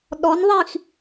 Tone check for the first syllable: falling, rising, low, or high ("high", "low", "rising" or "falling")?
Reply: rising